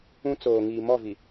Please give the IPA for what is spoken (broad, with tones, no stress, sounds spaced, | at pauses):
ũ˦ t͡s oː˨ ŋ iː˨ m ɔ˦˨ v i˨